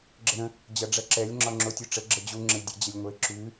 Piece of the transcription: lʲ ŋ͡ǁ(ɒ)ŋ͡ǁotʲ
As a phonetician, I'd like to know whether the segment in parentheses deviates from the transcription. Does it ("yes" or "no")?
no